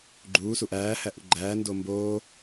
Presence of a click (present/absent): present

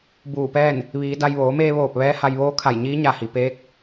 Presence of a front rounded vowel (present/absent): absent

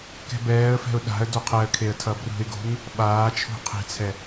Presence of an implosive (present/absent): present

